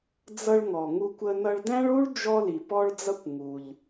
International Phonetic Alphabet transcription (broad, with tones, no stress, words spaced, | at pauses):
d͡zʌ˧ɭŋɔ˩ ŋu˧kʷə˧ nʌ˧ɭdæ̃˥ɭu˥ɭ d͡ʒɔ˧li˩pɔ˧ɭd͡zʌ˧kʷ ŋu˩ʎ